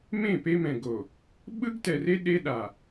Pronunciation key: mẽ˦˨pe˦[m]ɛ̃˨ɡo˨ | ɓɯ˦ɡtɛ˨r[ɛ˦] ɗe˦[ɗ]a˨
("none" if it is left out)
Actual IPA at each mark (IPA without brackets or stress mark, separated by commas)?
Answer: m, e˦, ɗ